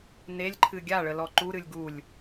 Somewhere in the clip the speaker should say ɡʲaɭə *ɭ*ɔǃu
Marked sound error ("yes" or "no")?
yes